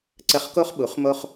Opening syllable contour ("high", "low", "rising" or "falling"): falling